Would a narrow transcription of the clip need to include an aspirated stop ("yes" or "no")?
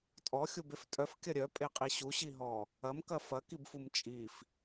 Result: no